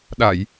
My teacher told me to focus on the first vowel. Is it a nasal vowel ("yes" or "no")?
no